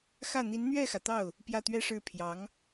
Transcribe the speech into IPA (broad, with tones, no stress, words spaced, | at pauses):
xä˥˩ n̪i˧˥nn̪ɥɛ˥˩xä˩t̪ɑ˥˩ʊ̯ | pjä˥˩t̪ɥɛ˥ʂɻ̩˥˩ pʰjɑ˧˥ŋ